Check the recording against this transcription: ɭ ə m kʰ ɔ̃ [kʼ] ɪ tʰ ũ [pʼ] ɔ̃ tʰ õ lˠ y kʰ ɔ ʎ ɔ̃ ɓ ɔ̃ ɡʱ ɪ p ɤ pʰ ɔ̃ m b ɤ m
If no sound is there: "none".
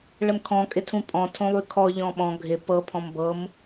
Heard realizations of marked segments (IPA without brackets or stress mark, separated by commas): kʼ, pʼ